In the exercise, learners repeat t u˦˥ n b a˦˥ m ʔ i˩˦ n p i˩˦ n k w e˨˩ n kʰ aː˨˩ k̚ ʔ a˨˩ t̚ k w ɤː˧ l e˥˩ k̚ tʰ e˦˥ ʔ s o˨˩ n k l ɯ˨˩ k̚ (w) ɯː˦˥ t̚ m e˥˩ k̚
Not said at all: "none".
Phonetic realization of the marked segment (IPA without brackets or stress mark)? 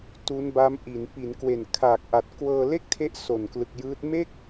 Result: j